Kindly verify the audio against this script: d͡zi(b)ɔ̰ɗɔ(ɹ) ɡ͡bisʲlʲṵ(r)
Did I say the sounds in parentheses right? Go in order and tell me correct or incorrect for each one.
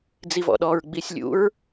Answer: incorrect: v, correct, incorrect: ɹ

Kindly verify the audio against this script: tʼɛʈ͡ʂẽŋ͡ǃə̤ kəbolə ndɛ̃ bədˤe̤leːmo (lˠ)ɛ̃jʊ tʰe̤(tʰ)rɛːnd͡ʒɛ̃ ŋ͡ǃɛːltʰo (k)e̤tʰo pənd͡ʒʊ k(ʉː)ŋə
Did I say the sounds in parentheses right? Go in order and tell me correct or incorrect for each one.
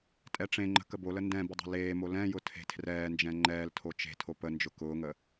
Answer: incorrect: l, correct, incorrect: t͡ʃ, incorrect: ʊː

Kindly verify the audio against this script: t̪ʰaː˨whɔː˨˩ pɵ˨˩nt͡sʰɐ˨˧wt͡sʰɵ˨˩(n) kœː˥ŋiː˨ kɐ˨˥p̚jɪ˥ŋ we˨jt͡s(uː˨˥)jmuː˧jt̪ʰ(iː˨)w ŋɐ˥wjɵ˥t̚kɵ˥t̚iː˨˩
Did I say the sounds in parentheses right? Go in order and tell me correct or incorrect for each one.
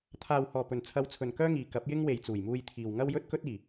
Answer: correct, incorrect: uː˨˩, correct

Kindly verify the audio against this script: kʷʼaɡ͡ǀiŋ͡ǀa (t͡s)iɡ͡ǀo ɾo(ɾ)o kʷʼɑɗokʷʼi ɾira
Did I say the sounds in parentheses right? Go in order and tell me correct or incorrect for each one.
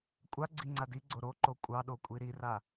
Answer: incorrect: d, incorrect: ǃ

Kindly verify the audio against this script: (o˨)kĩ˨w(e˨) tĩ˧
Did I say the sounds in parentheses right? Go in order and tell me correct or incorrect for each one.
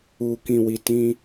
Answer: incorrect: u˨, incorrect: i˨

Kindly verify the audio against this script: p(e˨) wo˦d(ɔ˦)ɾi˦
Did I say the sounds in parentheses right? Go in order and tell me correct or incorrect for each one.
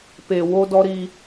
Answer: correct, correct

